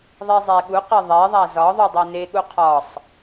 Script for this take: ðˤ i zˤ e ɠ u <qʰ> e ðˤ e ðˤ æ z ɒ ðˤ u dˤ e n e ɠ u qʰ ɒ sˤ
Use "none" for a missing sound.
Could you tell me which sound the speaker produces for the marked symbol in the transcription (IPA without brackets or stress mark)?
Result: q